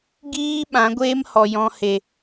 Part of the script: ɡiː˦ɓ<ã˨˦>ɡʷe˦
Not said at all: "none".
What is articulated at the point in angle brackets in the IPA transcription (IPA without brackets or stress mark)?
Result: ã˨˦